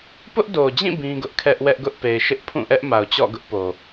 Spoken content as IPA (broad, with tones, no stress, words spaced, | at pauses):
pʊ˦ʔdo˨d͡ʑĩ˦˨ bĩ˦ɡʊ˦ʔ kʰɛ˦ʔ wɛ˦ʔɡʊ˦ʔpe˨ɪ̯ ʃɪ˦ʔpʰũ˦˨ʔɛ˦ʔ ma˨ʊ̯t͡ɕɔ̰˦˨ɡʊ˦ʔpo˨